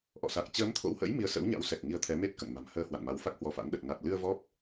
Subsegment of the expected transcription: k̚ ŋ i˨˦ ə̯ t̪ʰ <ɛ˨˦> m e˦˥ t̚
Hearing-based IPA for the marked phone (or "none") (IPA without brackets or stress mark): ɛ˨˦